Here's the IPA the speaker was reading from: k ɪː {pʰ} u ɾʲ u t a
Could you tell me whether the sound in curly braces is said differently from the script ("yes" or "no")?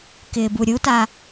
yes